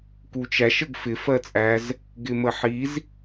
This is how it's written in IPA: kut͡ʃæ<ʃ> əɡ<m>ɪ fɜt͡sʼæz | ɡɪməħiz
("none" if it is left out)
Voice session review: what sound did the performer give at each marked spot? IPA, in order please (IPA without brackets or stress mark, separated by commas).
ʃ, f